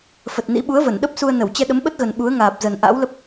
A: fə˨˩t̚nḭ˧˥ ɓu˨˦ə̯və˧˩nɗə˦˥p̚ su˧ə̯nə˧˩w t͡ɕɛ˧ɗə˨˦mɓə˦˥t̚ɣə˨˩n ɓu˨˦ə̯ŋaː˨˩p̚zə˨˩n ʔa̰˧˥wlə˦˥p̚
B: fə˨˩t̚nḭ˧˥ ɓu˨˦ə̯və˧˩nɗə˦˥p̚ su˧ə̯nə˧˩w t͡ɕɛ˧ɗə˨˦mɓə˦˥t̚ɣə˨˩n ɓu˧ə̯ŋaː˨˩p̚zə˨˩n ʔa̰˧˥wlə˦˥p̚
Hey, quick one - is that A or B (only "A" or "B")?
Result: A